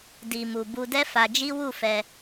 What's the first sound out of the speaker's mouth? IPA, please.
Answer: d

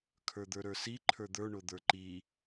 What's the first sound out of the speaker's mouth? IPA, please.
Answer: kʰ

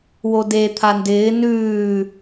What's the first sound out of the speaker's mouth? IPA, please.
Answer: w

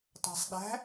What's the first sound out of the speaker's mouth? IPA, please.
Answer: tˤ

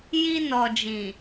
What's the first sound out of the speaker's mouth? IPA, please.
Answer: j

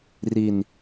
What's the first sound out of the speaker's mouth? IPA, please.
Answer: r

